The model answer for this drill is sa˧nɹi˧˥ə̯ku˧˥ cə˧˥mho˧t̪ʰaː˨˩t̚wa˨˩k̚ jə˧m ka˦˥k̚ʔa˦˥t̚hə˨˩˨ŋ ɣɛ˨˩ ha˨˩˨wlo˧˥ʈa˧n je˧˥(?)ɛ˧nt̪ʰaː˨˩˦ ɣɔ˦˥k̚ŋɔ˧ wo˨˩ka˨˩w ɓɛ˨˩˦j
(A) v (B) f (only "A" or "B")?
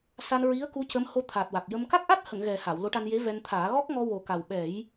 A